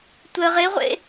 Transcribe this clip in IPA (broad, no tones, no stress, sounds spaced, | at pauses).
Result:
tʷ ə ʁ ɪ ʁʷ ḛ